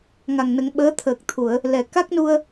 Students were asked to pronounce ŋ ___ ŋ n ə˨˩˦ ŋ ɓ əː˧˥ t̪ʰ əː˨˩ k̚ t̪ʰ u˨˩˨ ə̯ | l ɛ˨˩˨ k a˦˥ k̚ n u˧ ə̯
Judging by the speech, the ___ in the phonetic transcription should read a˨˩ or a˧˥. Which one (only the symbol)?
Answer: a˨˩